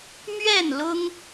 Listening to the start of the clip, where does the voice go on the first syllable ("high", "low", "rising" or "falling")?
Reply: falling